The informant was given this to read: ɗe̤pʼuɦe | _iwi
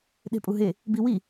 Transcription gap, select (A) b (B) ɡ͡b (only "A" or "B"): A